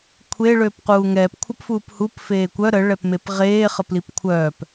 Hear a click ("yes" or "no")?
no